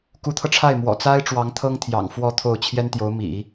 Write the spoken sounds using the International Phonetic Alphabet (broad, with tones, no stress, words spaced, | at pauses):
ku˧˥t̪ʰɤ˧ʈ͡ʂʰa˥˩ɪ̯ mwɔ̰˨˩t͡sa˥ɪ̯ ʈ͡ʂwɑ˧˥ŋt̪ʰɤ˥ŋt̪ʰjɑ̰˨˩ŋ fwɔ˥˧t̪ʰo˥˩ʊ̯ t͡ɕʰjɛ˥nt̪jo˧˥ʊ̯mḭ˨˩˦